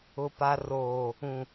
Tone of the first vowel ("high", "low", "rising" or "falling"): low